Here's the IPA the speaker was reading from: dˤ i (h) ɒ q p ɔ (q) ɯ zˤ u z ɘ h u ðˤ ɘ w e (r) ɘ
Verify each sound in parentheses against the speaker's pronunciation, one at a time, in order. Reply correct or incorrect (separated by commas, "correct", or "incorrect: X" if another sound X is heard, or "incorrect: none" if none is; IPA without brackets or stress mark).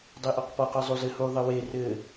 incorrect: ʔ, correct, correct